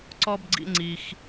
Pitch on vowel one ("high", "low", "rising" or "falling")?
high